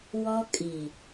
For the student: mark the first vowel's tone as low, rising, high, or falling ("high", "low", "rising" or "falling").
high